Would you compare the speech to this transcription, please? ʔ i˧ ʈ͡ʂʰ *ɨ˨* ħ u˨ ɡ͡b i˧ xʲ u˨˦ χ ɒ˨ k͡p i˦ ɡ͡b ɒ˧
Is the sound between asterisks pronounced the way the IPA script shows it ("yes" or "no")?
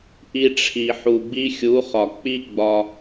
no